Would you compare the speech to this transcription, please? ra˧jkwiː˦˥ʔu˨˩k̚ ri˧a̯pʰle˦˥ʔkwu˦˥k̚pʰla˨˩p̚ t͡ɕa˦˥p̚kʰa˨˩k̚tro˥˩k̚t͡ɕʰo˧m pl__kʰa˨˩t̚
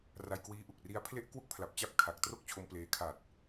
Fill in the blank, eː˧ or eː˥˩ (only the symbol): eː˧